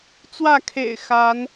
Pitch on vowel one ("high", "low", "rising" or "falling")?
falling